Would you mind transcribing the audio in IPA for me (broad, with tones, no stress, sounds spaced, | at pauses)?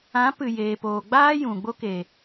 ã˨˦ p ɨ˨ j eː˨ p oː˨ ɡ͡b aː˦ j ũ˨ ɡ͡b o˦ k e˨